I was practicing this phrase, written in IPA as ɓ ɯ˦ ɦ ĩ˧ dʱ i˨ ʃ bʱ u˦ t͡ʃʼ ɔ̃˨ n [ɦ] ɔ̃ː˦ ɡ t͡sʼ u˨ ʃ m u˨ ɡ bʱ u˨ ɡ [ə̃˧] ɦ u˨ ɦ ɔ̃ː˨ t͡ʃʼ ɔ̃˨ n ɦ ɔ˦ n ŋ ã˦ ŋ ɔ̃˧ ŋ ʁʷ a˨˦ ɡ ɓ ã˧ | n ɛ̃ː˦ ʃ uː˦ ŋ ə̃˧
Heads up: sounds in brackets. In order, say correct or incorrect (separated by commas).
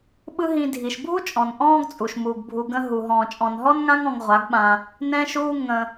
incorrect, correct